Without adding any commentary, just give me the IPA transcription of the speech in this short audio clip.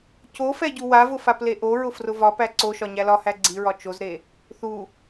cofɛ ɟuwavʊ fapleʔoɹʊ frʊvɒpæ ǀoʃɒ ɲælɒhæ ɡ͡ǀiɹɒ t͡ʃozɾe | θu

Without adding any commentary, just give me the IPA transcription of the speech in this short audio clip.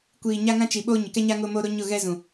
kʷiː˨ɲa˦ŋã˦ t͡ʃi˨ɓo˦ ɲɪ˨kɛ˦ɲa˦ ŋʊ˦mo˦ ɾo˦ɲʊ˦˨ɣɛ˦ zũ˨

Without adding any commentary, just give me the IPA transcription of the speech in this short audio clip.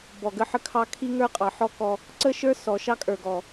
bɔ˨ɡə˦ħə˦kʰɑ˦ kʰi˦ŋə˞˦qʼɑ˨ħɔ˦ kɔ˦ | ǀə˦ʃə˞˦ sɔ˨ʃɑ˦kʼə˞˨ɡɔ˨

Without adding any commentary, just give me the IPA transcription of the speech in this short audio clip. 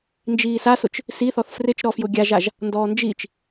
nd͡ʒiːsasʊt͡ʃ | siθɔθ frɪt͡ʃɾɔfjʊ ɡʲaʒaʒ | ndɔːnd͡ʒit͡ʃ

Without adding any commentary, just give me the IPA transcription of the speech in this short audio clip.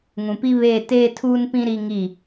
ŋũ˨pi˦βeː˦˨ teː˦tʰuː˦npĩ˦ ɾi˦ ŋi˦˨

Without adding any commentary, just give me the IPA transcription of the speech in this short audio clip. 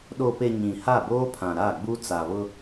ɗo˨pe˨ ɲĩ˨ha˦˨boː˦pʰã˨ ɾa˦˨ɡ͡bu˦ t͡sa˨βʊ˦

